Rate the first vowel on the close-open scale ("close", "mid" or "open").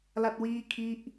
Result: open